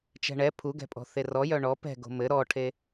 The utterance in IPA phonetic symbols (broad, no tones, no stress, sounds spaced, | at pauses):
t͡ʃ ɛ̤ ɳ ɛ pʰ u ɡ ɛ̤ pʼ ɔ̤ θ e r ɔ j œ ɳ ɔ p ɛ̤ ɡ o̤ m ɘ ɾ ɔ ʈʰ e